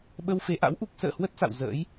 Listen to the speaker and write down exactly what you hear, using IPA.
ɓ ə˧ w f e˨˦ ʔ a̰˧˥ w ʔ u˦˥ k̚ s ə̰ː˧˨ h w ə˦˥ t̚ s a̰˧˨ w z ə̰ː˧˥ j

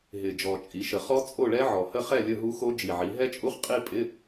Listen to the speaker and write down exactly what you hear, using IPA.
ɦ ɪ˨˩ d͡ʒ ɔ˨˩ t͡ʃʼ i˩˧ ʃ ə˨˩ χ ɔ˦˥ t͡sʼ o˥˨ ɭ ɛ˦˥ ʕ ɔ˨˩ h ə˥˨ χ ɛ˥˨ lʲ ə˥˨ ɦ u˦˥ x o˦˥ d͡ʒ i˨˩ ʕ i˩˧ ɦ ɛ˦˥ t͡ʃʼ u˦˥ χ qʼ i˥˨ pʼ ɪ˧˥˧

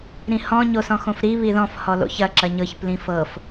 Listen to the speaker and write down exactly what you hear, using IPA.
ɾ ĩ h ɔ̃ ɲ o s ɔ̃ x õ f ɾ i β i ð ɔ̃ f h ɔ l o̰ ç ɐ ǁ ɐ ɲ ɤ ç p l ĩ f ɤ f

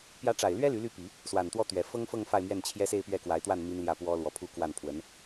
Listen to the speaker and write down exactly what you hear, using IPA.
p j ä˧˥ ʈ͡ʂ a˨˩ ɪ̯ l ɥ ɛ˥ l y˧˥ l y˥˩ p i˨˩˦ | s w a˨˩ n t̪ w ɔ˥˩ t̪ ɥ ɛ˨˩ f ɤ˥ ŋ f ɤ˥˧ ŋ f a˥˧ ɪ̯ m ɥ ɛ˥˩ n t͡ɕʰ j ɛ˥ s e˥˧ ɪ̯ p ɥ ɛ˥˩ k w a˧˥ ɪ̯ t̪ w a˥˩ n m i˥ n l j ä˥˩ p w ɔ˥ l w ɔ˧˥ pʰ u˥˧ k w a˥˩ n pʰ w ə˧˥ n

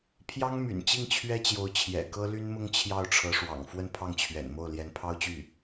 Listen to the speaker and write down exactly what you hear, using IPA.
pʰ j ɑ˥ ŋ m y̰˨˩ n t͡ɕ i˥˩ ŋ t͡ɕʰ ɥ ɛ˥ t͡ɕ j o˧˥ ʊ̯ t͡ɕʰ j ɛ̰˨˩ k ɤ˥ l y˥ n m ʊ˥ ŋ t͡ɕʰ j ɑ˥˩ ʊ̯ ʈ͡ʂʰ ɤ˧˥ ʂ w ɑ̰˨˩ ŋ f w ə˥˧ n pʰ ɑ˥˩ ŋ t͡ɕʰ ɥ ɛ̰˨˩ n m o˥˩ ʊ̯ l j ɛ˧˥ n pʰ ɑ˥ ʊ̯ t͡ɕ y˥˩

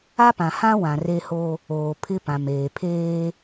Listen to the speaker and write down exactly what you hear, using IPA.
a˦ p ã˨ h ã˦ w ã˨ r e˦ h o˦ | oː˨ pʰ ɪ˦ p ã˨ m eː˨ pʰ eː˦

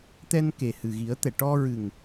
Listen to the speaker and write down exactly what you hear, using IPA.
t̪ ɛ˧ n k e˨˩ h ɨ˨˩ ɣ i˨˩˦ ə̯ t̪ ɛ˨˩˨ ʈ ɔ˧ ɹ ɨ˨˩ ŋ

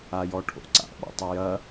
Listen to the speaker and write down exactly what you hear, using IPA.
a j ɔ ʈʰ o̰ ǀ a̰ ɓ ɔ̰ tˤ ɵ j ɐ

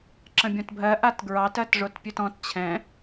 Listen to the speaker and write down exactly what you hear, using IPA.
ǁ ə̃ bʲ õ t bʱ ɜ ʔ a t ɡ ɹ ɑ t ɜ t ʐ o t pʲ ʉ t ɔ̃ t t͡ɕʰ ɛ̃

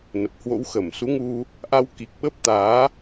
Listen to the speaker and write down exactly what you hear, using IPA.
n ə˨˩ p̚ h w o̰˧˥ w x ə˧˩ m s u˨˦ ŋ u˧ | ʔ a˧ w k i˨˩ k̚ ɓ ə˦˥ p̚ t̪ aː˨˦

